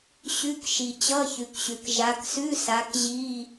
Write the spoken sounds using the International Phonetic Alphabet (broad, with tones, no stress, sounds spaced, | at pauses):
ɕ ʉ˧˥˧ k ʃ i˨ t͡ɕ ʌ˧˥˧ ç ʉ˨ k ɕ ʉ˨ k ʒ a˨˦ k s ʉ˧˥˧ s a˨˦ k ʑ i˧˥˧